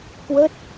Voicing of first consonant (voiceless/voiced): voiceless